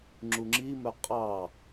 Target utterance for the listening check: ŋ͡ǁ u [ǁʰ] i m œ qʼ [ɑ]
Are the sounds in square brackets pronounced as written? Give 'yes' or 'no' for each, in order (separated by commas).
no, yes